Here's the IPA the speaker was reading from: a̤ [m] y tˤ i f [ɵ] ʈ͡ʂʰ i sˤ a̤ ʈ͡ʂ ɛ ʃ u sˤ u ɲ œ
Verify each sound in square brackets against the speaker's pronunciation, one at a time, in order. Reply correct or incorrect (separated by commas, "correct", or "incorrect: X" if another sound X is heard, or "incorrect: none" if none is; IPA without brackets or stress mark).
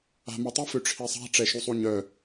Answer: correct, incorrect: ø